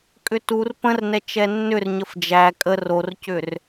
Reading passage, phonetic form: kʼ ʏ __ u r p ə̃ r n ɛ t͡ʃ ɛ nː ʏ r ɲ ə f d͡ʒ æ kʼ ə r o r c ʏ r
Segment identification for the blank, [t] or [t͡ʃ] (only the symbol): t